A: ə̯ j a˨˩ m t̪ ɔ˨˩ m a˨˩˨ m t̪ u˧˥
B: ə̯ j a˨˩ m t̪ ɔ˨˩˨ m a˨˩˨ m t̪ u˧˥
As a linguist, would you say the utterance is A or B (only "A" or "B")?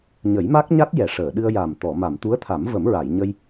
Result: B